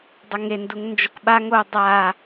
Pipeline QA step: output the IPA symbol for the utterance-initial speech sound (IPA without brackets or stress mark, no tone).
dˤ